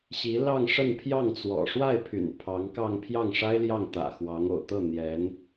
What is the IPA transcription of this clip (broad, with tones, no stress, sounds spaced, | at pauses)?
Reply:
ɕ i˧˥ l ɑ˥˧ ŋ ʂ ə˥˧ n pʰ j ɑ˥˩ ŋ t͡s w ɔ̰˨˩ ʂ w a˥˩ ɪ̯ pʰ y̰˨˩ n pʰ ɑ˧˥ ŋ k ɑ˥˧ ŋ pʰ j ɑ˥˩ ŋ ʂ a˥ ɪ̯ l j ɑ˥˩ ŋ t̪ ä̰˨˩ x w ɑ˧˥ ŋ o̰˨˩ ʊ̯ t̪ ɤ˥˩ n̪ j ɛ˧˥ n